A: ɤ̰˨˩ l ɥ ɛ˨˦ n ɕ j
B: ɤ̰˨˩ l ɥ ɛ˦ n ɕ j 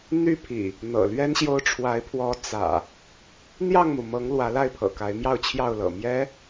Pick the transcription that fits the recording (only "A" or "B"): B